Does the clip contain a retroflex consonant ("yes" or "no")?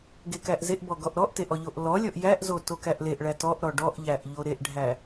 yes